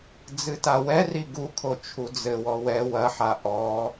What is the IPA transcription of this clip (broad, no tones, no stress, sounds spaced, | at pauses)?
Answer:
d͡z ɨ t a w ɛ r i ɡ u kʰ o t͡ʃʰ u d͡z ɘ w ɔ w ɛ w ɐ ħ a ʔ ɔ